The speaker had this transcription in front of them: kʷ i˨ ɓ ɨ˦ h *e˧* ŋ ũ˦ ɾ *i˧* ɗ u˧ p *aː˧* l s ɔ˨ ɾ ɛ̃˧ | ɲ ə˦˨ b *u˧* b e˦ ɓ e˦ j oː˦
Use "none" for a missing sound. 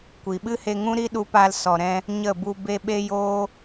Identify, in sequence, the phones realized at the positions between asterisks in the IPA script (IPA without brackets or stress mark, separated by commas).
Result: e˧, i˦, aː˧, u˧